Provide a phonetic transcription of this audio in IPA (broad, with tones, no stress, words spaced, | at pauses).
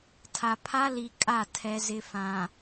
tʰa˨pʰa˦li˨ kʼa˦˨ tʰɛ˨ zɪ˨fã˨